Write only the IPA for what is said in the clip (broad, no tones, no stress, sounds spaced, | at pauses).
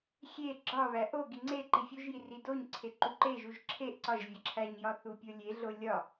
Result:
xʲ e ɡ͡ǁ ɒ β æ ʔ o ɡ i ŋ͡ǀ e ǃ i fʲ u ʒ j i r i d o ɲ ǀʰ e ǃ u ǃ e ʒ u ʒ ǁʰ e ʔ ǀ ɒ ʒ vʲ ɒ ǁʰ æ ɲ j ɒ θ u pʲ o lʲ e ɮ o lʲ ɒ